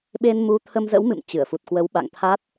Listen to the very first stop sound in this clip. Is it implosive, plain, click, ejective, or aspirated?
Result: implosive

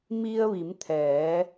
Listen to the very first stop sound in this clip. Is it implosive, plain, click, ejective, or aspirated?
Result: aspirated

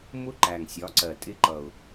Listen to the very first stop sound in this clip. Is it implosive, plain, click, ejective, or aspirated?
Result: click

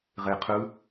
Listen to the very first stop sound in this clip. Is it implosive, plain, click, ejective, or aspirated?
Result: aspirated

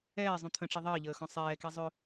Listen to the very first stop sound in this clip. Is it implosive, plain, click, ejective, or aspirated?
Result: aspirated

